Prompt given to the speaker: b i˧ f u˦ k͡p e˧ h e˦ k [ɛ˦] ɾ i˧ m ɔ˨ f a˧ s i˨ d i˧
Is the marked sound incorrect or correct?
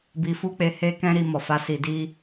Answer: incorrect: ɛ̃˦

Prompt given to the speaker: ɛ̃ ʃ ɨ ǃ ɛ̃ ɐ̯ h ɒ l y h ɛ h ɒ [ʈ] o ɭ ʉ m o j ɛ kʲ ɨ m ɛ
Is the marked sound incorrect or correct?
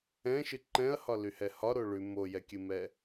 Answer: incorrect: ɾ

